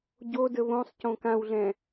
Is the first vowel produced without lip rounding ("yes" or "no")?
no